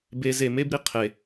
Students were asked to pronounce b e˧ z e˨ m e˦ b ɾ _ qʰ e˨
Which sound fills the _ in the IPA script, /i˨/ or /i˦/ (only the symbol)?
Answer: i˨